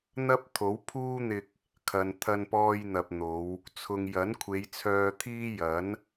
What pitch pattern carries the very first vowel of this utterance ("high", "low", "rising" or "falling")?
high